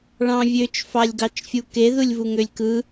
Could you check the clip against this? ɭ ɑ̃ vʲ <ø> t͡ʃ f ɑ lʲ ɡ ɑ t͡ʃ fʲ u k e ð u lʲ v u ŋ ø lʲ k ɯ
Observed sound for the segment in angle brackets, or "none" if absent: ø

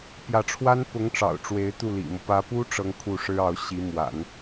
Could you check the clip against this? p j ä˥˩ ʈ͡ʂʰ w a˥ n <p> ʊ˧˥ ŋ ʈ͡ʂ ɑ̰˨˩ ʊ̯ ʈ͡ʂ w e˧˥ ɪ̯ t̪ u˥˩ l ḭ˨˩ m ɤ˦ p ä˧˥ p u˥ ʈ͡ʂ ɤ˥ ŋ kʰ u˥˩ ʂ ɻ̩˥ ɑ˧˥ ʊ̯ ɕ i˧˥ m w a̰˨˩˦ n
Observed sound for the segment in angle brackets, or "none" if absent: p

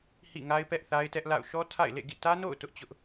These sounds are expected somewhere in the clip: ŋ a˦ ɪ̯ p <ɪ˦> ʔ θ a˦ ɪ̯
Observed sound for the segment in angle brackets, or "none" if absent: ɛ˦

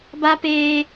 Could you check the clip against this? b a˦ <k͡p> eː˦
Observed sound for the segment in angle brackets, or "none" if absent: p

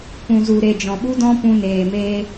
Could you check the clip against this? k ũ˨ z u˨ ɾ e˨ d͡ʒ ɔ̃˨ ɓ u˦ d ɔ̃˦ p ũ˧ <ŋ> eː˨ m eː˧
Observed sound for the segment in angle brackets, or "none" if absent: n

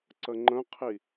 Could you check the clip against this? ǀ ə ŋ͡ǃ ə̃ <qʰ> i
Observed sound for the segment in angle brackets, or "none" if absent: qʰ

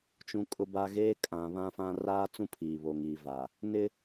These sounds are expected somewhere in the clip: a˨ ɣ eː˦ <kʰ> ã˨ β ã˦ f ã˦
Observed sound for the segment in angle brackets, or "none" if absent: kʼ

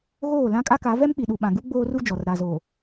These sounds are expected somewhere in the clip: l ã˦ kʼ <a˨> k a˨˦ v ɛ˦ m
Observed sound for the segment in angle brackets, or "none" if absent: a˦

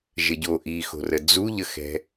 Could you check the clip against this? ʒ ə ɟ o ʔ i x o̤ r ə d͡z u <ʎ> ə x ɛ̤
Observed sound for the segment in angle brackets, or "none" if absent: ʎ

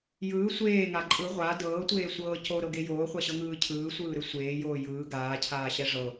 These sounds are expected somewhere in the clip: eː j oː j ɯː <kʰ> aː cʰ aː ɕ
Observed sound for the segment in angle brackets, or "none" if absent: ɡ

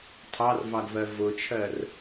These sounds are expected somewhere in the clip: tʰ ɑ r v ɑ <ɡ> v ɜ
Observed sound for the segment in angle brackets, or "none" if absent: ɡ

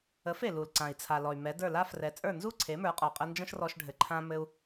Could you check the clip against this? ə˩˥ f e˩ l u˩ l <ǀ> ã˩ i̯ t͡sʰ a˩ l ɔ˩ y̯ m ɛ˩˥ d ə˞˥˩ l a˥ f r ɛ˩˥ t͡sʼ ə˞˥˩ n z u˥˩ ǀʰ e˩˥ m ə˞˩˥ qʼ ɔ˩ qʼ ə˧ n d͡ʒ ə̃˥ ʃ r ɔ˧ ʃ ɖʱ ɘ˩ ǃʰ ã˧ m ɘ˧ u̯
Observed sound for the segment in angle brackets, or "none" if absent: ǀ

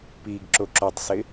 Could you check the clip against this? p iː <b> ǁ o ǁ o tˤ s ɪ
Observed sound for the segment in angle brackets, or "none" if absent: ɡ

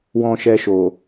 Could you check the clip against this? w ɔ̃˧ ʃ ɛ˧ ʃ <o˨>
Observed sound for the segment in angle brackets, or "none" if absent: o˨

